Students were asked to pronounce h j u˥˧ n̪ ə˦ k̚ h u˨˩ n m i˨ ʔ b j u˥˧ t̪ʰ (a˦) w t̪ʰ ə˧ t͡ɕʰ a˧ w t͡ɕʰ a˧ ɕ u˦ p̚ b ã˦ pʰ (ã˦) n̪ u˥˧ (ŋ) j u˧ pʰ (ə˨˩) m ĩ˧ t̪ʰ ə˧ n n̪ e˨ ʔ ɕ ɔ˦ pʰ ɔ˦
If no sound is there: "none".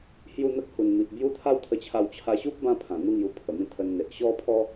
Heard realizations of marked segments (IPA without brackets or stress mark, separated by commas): a˦, ã˨˩, ŋ, ə˨˩